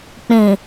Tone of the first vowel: low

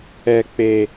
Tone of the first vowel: low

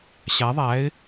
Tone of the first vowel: rising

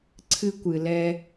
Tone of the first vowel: high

